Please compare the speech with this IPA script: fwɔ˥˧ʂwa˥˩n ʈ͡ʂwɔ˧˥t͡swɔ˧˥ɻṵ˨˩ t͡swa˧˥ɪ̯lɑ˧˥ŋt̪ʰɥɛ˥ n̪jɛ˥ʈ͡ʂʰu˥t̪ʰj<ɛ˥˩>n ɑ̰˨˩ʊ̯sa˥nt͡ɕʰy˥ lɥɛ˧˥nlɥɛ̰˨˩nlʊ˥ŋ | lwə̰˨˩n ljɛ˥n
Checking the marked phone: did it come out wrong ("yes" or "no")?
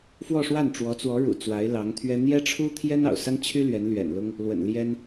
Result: yes